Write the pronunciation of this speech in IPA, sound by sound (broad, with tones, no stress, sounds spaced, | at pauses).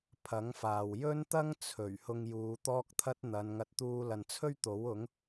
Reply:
pʰ ɐ˨˥ ŋ f aː˨ w j ɵ˥ n t̪ ɐ˥ ŋ t͡sʰ ɵ˨˩ ɥ h ʊ˧ ŋ j uː˨˧ t̪ ɔː˥ k̚ t̪ʰ ɐ˥ t̚ n̪ ɐ˨˧ n ŋ ɐ˧ t̚ t̪ uː˧ l ɐ˨ n t͡sʰ ɵ˥ ɥ t̪ o˨˥ w ʊ˨˥ ŋ